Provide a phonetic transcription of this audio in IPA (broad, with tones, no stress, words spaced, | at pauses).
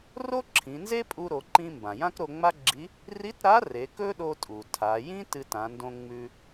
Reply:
ro˥ǁʰĩ˩˧nze˥ pʼu˧ɾo˩˧ǃĩ˧ mbã˩jã˥kɾo˧ ŋ͡ma˥ɡ͡ǁi˧˥ | ri˧˥tɾa˧˥r e˩˧kɵ˥ɗo˧tʼu˩ tʰa˩˧ jĩ˥ tɨ˧tã˩˧ndõ˧ ŋ͡mʉ˧